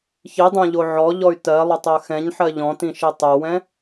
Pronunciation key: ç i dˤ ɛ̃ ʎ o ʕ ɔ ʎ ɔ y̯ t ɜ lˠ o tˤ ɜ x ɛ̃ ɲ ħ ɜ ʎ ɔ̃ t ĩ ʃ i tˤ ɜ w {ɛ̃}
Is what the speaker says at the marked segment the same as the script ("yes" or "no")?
yes